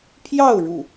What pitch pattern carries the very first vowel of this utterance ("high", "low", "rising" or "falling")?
falling